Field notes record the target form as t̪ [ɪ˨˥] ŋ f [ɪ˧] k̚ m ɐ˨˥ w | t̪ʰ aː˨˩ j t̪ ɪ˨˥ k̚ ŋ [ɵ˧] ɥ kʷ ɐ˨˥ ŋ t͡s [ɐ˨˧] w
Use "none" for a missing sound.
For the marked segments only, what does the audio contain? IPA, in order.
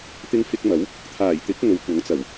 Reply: ɪ˧, ɪ˧, ɵ˨, ɐ˨˩

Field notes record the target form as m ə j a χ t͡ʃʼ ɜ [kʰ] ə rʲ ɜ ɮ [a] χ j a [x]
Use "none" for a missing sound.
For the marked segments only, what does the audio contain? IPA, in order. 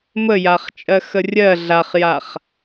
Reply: x, a, χ

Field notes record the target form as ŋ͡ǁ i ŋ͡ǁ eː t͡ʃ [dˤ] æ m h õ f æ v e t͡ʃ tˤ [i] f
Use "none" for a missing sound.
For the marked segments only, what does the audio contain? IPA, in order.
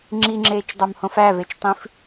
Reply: dˤ, ĩ

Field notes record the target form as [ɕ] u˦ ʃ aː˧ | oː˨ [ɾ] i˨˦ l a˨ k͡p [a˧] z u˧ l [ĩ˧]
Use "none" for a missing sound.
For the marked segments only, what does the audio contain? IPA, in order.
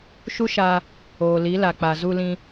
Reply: ʃ, l, a˨, ĩ˧

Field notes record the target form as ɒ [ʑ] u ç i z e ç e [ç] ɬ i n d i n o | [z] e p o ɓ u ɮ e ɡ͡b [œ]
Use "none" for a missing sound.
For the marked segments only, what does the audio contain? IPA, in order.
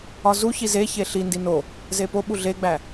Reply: z, none, z, æ

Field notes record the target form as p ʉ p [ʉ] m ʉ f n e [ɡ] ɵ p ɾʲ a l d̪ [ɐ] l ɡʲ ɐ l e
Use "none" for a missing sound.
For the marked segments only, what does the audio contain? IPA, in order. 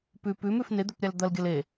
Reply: ʉ, d̪, ɐ

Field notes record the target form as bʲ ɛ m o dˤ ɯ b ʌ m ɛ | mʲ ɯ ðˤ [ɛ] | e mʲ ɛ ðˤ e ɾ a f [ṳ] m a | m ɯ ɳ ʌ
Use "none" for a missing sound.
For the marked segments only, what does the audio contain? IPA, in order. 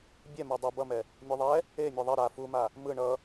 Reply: ɛ, u

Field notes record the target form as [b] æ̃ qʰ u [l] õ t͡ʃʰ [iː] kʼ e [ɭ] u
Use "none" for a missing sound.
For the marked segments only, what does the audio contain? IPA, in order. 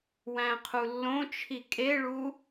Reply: w, lː, i, ɭ

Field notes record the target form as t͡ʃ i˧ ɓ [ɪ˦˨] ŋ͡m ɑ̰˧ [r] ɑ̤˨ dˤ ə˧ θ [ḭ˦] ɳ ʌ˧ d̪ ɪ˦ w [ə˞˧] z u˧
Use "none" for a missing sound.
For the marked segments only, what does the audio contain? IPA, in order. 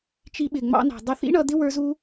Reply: ɪ˨, n, ḭ˦, ə˞˧

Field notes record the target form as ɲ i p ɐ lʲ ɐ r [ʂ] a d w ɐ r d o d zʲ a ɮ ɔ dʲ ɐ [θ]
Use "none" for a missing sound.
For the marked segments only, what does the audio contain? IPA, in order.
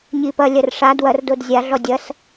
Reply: ʂ, s

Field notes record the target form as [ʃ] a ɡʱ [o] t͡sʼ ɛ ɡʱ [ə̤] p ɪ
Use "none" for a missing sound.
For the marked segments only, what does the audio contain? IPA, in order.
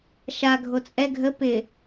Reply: ʃ, o, ə

